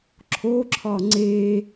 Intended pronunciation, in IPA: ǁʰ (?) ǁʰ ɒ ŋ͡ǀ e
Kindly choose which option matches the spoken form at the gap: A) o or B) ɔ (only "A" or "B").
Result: A